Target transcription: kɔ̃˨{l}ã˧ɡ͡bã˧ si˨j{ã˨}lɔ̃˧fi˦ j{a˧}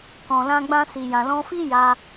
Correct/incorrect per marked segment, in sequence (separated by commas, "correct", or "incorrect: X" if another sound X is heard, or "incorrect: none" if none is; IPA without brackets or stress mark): correct, correct, correct